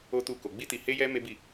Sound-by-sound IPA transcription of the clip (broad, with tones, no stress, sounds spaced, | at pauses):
o˦ t u˦˨ k o˧ ɡ͡b i˦ t i˧ h e˦ j ɛ˦ m e˦ b i˦˨